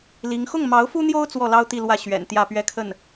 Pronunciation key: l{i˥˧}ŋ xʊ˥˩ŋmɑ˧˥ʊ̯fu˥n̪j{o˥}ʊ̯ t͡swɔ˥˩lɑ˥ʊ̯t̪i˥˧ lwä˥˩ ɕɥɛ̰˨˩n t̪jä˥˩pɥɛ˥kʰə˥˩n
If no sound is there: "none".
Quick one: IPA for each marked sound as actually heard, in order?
i˧˥, o˥

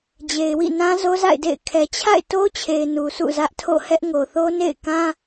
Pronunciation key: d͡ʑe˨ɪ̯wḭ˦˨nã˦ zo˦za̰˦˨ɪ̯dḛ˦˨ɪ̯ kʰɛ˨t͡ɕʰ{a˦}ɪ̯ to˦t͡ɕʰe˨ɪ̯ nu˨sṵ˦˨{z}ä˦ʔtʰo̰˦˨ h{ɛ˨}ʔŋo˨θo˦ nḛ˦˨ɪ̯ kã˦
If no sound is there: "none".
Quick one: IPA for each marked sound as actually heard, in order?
a̰˦˨, z, ɛ˦

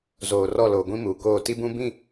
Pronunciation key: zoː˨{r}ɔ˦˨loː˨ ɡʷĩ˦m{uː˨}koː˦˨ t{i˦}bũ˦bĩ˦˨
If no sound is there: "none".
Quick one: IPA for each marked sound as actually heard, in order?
r, uː˨, i˦

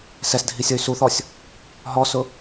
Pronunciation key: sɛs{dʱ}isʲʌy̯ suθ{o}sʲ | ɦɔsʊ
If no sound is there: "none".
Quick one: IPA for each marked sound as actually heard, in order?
dʱ, ɔ

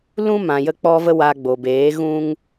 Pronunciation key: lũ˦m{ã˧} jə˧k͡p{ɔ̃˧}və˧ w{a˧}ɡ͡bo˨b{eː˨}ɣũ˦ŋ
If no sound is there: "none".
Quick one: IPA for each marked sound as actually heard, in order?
ã˨, ɔ˧, a˧, eː˨˦

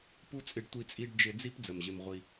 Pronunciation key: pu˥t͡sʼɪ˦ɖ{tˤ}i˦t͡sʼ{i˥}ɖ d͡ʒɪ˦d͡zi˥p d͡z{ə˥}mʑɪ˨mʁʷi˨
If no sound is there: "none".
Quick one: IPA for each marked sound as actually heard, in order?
tʷ, i˦, ə˩

